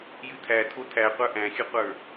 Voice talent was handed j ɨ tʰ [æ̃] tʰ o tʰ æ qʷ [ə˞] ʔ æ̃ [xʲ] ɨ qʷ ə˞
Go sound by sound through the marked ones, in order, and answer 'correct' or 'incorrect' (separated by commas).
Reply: incorrect, correct, correct